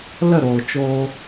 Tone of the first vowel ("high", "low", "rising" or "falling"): falling